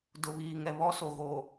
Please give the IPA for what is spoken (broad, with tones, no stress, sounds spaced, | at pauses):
d ʊ˨ β iː˨ ŋ ɛ˨ β ɔ˦ s o˨ ɣ oː˨